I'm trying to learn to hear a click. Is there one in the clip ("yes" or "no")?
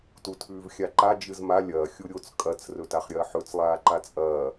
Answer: yes